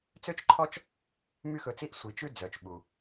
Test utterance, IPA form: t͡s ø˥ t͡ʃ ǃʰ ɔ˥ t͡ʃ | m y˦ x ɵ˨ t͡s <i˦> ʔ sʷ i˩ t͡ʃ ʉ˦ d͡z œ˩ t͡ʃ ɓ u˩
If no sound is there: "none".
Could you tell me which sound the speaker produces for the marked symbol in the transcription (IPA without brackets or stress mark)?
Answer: i˦